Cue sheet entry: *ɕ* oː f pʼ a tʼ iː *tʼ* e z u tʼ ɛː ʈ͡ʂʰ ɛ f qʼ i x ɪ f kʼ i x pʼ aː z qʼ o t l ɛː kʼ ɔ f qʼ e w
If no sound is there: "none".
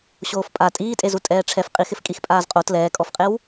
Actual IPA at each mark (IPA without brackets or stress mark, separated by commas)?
ɕ, tʼ